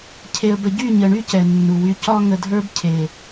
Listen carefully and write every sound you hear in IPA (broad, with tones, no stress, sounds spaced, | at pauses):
cʰ e˨ ə̯ b ə˨ ɟ y˦˨ ɲ ə˨ ɳ y˧ c ɛ˨ nː u˨ w y˧ c ɒ˦ ŋ ə˧ dʱ ə˞˦ b cʰ e˨